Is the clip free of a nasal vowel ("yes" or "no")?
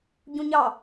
no